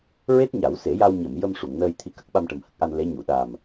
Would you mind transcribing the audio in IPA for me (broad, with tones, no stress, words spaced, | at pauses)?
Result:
ɹe˦˥t̚ɲa˨˩˦wse˨˩˦ja˧w ɲə˨˩˨m jə˧m ʂu˨˩˨ŋnəː˧jt̪ʰi˧kə˦˥k̚ ɓa˧mʈə˨˩mhə˦˥k̚ʔa˧n le˧˥ɲu˨˩˨ ɗa˨˩m